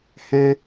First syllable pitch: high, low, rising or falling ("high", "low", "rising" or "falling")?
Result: high